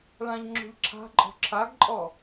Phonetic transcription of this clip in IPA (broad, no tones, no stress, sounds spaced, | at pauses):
ɭ ã ʎ ŋ͡ǁ o̤ ʎ ǁʰ a̤ ǃʼ ɔ̤ ǁʰ a ɡ ǃʼ ɔ